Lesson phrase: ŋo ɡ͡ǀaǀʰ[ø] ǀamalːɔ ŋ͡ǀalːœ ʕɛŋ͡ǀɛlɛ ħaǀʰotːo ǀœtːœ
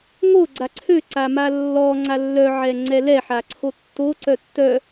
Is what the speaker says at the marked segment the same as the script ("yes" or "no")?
yes